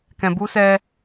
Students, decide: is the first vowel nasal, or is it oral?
nasal